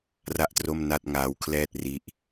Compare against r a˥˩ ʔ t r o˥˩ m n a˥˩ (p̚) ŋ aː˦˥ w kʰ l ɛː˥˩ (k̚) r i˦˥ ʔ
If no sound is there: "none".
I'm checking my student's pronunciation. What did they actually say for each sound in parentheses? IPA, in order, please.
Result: t̚, t̚

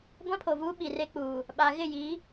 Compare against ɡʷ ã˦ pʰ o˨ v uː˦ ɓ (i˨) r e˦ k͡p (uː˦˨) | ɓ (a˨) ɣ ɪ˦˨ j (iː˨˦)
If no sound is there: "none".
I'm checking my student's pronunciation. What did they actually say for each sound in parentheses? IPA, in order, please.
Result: i˨, uː˨, a˨, iː˨˦

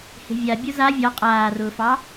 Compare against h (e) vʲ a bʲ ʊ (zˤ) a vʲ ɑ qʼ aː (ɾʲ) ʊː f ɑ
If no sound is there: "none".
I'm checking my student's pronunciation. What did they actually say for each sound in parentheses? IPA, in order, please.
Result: e̤, z, r

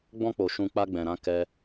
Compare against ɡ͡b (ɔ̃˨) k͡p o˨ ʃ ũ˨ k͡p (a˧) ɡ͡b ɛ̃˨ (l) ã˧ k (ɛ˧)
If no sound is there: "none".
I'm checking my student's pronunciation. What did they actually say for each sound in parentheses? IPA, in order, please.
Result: ɔ̃˧, a˧, ɾ, ɛ˦

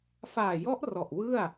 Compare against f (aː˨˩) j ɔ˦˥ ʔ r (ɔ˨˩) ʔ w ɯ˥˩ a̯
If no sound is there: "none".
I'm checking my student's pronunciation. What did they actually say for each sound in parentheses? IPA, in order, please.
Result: aː˨˩, ɔ˨˩

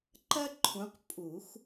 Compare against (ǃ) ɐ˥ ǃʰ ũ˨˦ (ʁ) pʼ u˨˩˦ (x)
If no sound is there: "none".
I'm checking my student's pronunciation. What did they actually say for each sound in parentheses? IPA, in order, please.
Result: ǃ, q, x

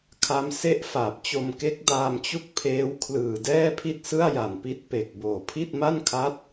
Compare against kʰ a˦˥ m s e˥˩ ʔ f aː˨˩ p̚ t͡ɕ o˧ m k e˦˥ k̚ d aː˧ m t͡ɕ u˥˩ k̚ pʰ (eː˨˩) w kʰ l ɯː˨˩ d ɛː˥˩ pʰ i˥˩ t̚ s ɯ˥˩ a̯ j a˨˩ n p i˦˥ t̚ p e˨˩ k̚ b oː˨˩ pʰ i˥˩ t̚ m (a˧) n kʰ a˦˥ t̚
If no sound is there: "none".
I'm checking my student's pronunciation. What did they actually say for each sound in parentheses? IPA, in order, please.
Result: eː˦˥, a˥˩

